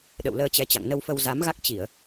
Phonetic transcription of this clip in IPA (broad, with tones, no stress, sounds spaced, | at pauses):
ɗ ə̰˧˨ w l əː˧ t͡ɕ ɛ˧ t͡ɕ a̰˧˨ ŋ n ə˧ w f ə˧ w z a˨˦ m ɣ a˦˥ k̚ t͡ɕ i˧˩˨ ə̯